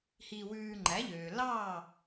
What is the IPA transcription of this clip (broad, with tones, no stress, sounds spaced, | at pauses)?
h iː˧ w ʉː˧ ŋ͡ǃ æ˩˥ ʎ øː˩ l ɑː˥˩